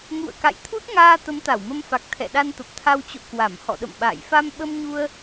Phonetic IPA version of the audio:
ŋ ṵ˧˨ ə̯ k a̰˧˨ j t̪ʰ u˦˥ t̚ ŋ aː˧ t̪ ə˨˦ m t̪ a˧˩ w m ə˧ m f a˨˩ k̚ t̪ʰ ɛ̰˧˨ ɗ a˧ n t̪ ə˨˩ p̚ t̪ʰ a˧ w t͡ɕ o̰˧˨ k w a˧˩ m h ɔ̰˧˨ ɗ ə̰˧˨ m ɓ a̰ː˧˨ j f a˧ m ɓ ə˧ m ɲ u˧ ə̯

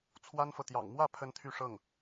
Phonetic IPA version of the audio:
t͡sʰ w a˥ n f ɤ˨ t̪ j ɑ̰˨˩ ŋ m w ä˥˩ pʰ ə˥ n t̪ʰ y˥˧ ʂ ɤ˥˩ ŋ

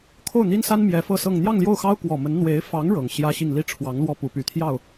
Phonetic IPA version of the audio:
kʰ o˥˩ ʊ̯ n̪ i˥ n s a˥ n m j ɛ˧˥ f ɤ˥˧ s ɤ˥˧ ŋ n̪ j ɑ˥˧ ŋ l j o˥˩ ʊ̯ x ɑ˥ ʊ̯ k w ɔ˨˩ m ə˧˥ n n̪ w e˧˥ ɪ̯ f ɑ˧˥ ŋ ɻ ɤ˨˩ ŋ ɕ j ä˥ ɕ i˥˧ ŋ l i˥˩ ʈ͡ʂʰ w ɑ˧˥ ŋ l w ɔ˥˩ p u˧˥ p y˨˩ t̪ʰ j ɑ˥˩ ʊ̯

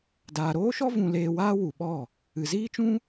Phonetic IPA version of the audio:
d aː˨ ɾ oː˦ ʃ ɔ˦ v ũ˧ l eː˧ w aː˦ w u˨ ɓ ɔ˦˨ | ɨ˨ z iː˦ t͡ʃ ũ˦

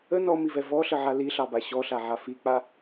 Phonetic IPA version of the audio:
ə n ɔ m i v ɛ v ɔ ɬ ə ʕ a l i ɬ ɑ b a ɕ ɔ ɬ a ʕ a f i k͡p a

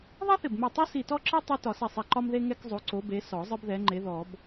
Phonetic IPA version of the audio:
ðˤ ɛ˥ θ ɪ˧˩ b m ɛ˧˩ tˤ u˥ s i˧˩ t ɔ˥ ǁ ɯ˥ tˤ ɯ˥ t ɒ˨˩˦ s ɛ˧˩ sˤ ɛ˧˩ ǃ ɒ˥ m ð e˥ ŋ ɛ˥ k zˤ o˨˥ ǀ o˨˥ b e˨˥ s ɔ˨˩˦ zˤ ɯ˥ b ð ɛ˨˥ ŋ͡ǃ e˨˥ ð ɔ˨˩˦ b

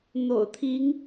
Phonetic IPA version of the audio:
n̪ o̰˨˩ ʊ̯ t̪ʰ i˨˦ ŋ

